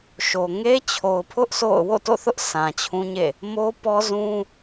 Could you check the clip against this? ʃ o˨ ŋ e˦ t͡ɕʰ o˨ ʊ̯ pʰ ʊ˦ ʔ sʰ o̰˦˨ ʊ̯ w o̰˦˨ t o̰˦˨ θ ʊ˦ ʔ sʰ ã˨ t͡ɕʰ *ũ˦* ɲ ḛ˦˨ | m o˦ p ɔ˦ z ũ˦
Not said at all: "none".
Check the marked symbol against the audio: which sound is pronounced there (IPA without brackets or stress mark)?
ũ˦